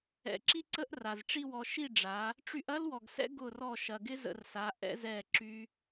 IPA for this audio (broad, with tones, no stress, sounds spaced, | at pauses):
ɛ̰˨ ǁ i˦ ǀ ə˦ ʔ r a˨ z ʈ͡ʂ i˧ w ɔ˨ ʃ i˦˨ ɖ͡ʐ a˨˦ | ʈ͡ʂ y˧ ʔ ɐ˦ l w ɔ˨ ɡ s ɛ̰˦ ɡ ʊ˦˨ r ɔ˦˨ ʃ ɐ˨ ɡ ɪ˦ z ə̰˧ r s a˨˦ ʔ ɛ̰˦ z ɛ˦˨ ǁ y˦